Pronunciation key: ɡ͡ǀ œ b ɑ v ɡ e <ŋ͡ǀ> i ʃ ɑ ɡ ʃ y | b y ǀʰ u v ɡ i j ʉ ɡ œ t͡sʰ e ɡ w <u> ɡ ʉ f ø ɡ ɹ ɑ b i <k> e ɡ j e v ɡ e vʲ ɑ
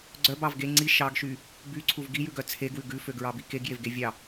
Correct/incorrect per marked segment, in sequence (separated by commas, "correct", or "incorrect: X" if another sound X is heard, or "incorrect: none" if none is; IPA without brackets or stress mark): correct, incorrect: ʉ, correct